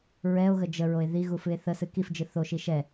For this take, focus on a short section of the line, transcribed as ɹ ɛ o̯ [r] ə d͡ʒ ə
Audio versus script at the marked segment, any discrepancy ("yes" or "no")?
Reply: yes